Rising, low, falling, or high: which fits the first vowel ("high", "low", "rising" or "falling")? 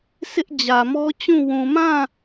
high